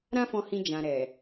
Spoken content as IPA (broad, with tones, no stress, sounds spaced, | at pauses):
ɾ ã˦ f ɔ̃˧ h ĩ˧ d͡ʒ ã˨ ɾ ɛ˨